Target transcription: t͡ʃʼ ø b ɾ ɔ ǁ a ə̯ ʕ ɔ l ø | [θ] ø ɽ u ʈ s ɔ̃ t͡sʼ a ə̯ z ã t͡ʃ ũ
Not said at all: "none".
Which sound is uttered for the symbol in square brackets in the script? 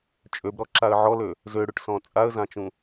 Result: z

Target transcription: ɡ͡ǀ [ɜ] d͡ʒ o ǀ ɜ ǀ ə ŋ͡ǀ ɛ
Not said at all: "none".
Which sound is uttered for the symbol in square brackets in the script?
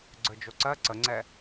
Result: ə˞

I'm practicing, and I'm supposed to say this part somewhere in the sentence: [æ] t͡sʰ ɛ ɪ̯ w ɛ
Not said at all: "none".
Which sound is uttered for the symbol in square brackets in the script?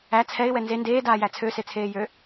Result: æ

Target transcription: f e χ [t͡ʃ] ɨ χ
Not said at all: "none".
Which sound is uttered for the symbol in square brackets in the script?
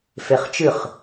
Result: t͡ʃ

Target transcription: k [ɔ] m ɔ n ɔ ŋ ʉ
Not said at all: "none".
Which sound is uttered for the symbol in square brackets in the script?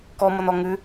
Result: ɔ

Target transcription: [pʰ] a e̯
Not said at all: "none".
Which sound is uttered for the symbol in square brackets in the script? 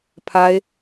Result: pʰ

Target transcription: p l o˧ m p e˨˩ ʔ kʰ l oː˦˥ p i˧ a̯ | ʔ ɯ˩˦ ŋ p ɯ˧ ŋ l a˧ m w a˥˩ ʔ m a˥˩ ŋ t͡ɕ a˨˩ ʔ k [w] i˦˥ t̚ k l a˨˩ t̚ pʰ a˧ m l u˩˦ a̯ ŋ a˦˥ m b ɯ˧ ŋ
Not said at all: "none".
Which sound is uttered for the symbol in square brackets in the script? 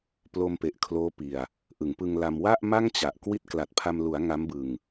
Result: w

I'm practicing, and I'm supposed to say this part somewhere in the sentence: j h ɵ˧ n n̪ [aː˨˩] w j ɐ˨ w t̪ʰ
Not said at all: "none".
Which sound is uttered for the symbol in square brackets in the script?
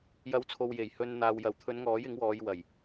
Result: aː˨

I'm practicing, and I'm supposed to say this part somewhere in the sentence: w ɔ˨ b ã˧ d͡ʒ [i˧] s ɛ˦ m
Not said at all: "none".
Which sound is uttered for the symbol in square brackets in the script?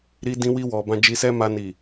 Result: i˧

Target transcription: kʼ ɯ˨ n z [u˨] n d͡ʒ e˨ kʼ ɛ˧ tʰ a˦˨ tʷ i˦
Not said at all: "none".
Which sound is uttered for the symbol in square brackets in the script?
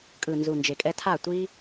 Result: u˨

